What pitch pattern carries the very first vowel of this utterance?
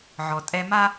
low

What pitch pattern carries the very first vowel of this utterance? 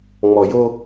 low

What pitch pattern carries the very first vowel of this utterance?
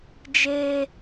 high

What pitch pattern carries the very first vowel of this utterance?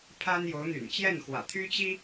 high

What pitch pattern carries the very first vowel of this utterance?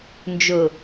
low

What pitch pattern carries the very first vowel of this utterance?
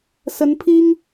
rising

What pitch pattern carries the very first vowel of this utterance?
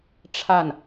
falling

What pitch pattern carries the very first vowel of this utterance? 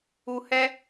low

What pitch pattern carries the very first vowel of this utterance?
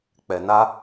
low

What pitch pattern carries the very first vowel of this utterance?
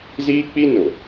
high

